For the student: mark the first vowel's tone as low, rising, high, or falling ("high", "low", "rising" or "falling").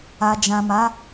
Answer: low